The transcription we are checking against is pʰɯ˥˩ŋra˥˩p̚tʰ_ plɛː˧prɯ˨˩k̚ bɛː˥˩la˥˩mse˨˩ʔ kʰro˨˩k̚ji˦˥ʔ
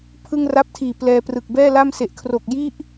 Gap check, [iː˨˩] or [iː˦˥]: iː˨˩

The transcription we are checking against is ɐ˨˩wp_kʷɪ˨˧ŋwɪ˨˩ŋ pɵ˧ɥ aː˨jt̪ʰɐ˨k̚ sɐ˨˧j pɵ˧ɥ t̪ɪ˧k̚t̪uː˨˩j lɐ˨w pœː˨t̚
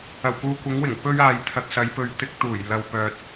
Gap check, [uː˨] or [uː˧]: uː˨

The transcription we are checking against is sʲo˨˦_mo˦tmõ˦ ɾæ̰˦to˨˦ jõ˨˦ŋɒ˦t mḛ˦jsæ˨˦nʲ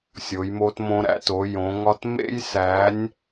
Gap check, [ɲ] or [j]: j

